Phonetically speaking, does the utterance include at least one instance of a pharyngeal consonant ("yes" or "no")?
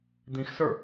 no